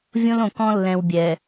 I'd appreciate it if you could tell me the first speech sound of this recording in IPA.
vʲ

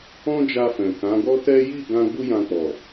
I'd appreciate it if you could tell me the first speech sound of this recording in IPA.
ɔ̃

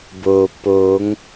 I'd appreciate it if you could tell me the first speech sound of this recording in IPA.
b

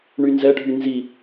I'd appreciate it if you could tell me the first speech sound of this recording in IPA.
ɳ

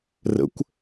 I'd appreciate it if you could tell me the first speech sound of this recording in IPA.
r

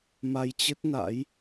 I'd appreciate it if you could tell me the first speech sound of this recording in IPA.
m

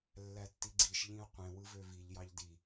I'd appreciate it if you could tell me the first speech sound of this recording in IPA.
lː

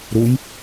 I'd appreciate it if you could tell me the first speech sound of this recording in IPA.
ɾ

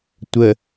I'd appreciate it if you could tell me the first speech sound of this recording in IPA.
tʷ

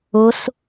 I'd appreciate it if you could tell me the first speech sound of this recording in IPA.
ʊ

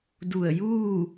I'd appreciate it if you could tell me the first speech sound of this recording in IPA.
d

